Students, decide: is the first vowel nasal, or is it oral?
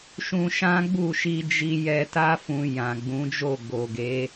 nasal